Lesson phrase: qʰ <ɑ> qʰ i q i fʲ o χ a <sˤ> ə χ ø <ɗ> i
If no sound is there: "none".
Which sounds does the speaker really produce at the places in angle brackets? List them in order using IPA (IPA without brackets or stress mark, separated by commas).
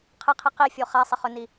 ə, sˤ, n